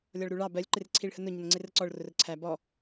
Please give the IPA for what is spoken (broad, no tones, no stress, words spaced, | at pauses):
lʲɒɭɾuɭɑ bɜlʲǃɪr ǀʰiɭhənʊ ɲənŋ͡ǀɪrəǀɔɭ rʊrǀʰæ bɔ